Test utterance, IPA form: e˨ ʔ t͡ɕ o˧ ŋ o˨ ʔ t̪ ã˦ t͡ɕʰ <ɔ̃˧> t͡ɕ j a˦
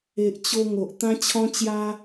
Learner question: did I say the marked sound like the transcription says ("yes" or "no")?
no